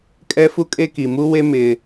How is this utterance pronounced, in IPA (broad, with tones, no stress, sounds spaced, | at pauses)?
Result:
kʼ ɛ˦ f u˦ kʼ e˦ k i˨ m u˦ w e˦ m ɪ˦